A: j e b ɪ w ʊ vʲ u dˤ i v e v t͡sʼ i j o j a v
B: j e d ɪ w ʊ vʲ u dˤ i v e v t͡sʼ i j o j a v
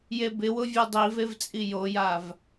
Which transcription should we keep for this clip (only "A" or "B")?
A